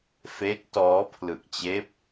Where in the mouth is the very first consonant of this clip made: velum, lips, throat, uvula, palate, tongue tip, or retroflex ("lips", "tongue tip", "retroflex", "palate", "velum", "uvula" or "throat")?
lips